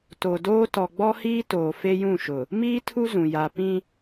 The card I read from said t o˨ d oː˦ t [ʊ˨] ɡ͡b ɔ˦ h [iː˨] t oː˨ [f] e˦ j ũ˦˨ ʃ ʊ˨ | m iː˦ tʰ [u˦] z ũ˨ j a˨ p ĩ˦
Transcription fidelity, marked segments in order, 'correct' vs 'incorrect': incorrect, incorrect, correct, correct

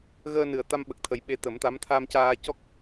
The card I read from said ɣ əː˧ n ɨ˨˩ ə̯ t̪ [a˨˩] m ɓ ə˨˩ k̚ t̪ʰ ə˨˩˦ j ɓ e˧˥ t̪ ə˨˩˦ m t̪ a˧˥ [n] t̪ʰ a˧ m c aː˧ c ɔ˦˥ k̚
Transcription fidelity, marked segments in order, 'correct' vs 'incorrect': incorrect, incorrect

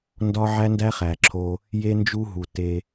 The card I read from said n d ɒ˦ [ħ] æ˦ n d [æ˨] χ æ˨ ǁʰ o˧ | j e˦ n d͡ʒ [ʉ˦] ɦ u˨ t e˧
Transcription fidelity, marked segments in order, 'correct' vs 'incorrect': incorrect, incorrect, incorrect

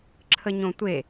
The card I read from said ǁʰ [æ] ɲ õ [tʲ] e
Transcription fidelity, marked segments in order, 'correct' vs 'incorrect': incorrect, incorrect

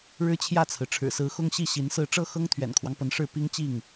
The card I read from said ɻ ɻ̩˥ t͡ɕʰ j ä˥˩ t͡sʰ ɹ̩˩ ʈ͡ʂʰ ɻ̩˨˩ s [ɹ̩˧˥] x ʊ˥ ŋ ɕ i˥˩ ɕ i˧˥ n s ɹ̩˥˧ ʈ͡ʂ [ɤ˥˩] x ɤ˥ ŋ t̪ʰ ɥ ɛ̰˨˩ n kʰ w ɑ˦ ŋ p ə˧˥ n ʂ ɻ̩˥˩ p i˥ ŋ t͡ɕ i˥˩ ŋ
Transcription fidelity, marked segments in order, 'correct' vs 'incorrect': correct, correct

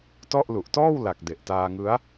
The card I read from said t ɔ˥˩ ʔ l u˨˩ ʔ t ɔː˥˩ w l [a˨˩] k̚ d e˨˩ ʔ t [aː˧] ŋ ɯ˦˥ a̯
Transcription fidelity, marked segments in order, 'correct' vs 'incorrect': correct, correct

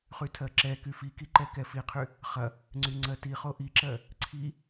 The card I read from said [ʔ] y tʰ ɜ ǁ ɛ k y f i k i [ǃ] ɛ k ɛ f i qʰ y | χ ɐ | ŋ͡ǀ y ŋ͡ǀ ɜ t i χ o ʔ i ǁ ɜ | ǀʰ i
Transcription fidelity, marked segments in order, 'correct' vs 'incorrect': incorrect, correct

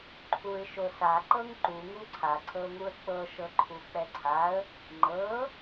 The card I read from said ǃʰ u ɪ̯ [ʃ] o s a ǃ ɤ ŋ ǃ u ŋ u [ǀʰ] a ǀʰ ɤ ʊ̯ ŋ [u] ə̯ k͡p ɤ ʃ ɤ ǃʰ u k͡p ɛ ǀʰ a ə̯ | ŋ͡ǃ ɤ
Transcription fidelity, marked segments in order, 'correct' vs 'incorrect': correct, correct, correct

